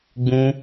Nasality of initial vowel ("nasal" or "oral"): nasal